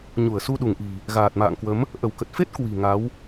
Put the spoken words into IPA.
ɲ u˧˩ ə̯ s u˧ ɗ u˧˩ ŋ ʔ i̤˨˩ | ɣ aː˨˩ t̚ m a̰ː˧˨ ŋ k w ə˨˦ m | ʔ ə˧˩ w k ə˨˩ t̚ f e˦˥ t̚ k w i̤˨˩ ŋ a˨˦ w

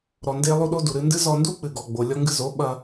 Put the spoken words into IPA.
ɾ ɔ˧ n d e˦ lˠ u˦ ɗ o˦ d u˨ ɾ ɨ˧ n d ɨ˦ z ɔ˧ n d u˦ k͡p ɨ˨ ɡ ɔ˨ ɡ͡b o˨ lʲ ɔ˧ ŋ ɡ ɨ˧ z o˨˦ ɓ ɐ˧

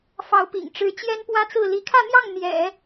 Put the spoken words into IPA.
f ɑ˧˥ ʊ̯ p ḭ˨˩ ŋ ʈ͡ʂ ɻ̩˧˥ t͡ɕ j ɛ˥ n p w ä˥ t͡s ɹ̩˥˩ l i˧˥ kʰ ä˥˧ n̪ j ɑ˥˩ ŋ n̪ j ɛ̰˨˩˦

